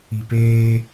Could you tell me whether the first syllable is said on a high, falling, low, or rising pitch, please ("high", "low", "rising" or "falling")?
low